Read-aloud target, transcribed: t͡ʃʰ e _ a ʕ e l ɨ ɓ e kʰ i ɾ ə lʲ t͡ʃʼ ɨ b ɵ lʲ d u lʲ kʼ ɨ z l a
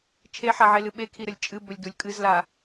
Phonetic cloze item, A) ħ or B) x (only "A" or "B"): A